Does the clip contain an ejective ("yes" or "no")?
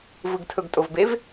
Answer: yes